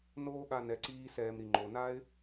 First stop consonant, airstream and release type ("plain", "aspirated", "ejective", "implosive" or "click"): implosive